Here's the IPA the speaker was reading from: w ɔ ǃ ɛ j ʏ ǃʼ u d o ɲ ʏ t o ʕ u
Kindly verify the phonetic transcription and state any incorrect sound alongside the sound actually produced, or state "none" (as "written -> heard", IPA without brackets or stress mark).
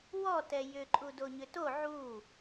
ǃ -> t